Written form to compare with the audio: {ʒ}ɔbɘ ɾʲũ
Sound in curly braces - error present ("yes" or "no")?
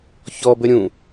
yes